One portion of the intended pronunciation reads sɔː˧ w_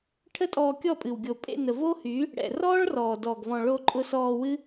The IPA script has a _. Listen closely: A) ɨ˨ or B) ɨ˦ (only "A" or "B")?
B